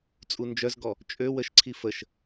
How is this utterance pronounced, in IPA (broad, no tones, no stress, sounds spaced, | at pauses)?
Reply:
t͡sʼ u n d͡ʒ œ z ɡ ɔ | t͡ʃʼ ø w ə ʃ ǀʰ i f ə ʃ